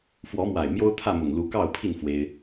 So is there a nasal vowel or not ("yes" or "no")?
no